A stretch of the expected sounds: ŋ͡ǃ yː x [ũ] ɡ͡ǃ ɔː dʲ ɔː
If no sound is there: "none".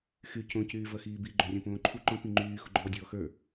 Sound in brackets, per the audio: u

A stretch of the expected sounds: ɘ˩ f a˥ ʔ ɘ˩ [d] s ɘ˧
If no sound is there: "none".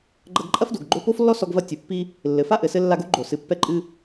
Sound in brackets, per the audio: none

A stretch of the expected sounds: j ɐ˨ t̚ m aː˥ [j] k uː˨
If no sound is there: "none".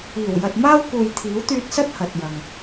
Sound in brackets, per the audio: w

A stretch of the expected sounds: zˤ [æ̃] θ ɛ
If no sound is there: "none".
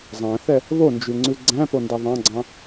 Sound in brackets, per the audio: æ̃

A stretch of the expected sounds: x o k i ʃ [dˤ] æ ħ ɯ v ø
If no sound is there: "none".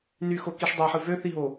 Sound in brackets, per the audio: dˤ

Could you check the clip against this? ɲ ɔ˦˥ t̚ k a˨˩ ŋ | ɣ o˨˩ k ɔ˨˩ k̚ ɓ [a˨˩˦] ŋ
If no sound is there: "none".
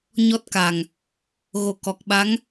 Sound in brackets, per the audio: a˧˥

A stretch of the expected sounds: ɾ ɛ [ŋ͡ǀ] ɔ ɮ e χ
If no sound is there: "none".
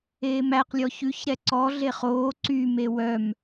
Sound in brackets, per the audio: ǀ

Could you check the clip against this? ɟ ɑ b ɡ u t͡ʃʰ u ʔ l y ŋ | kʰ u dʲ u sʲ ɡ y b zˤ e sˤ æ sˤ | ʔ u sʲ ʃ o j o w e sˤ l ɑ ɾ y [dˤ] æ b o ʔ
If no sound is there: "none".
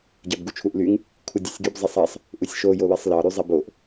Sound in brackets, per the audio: zˤ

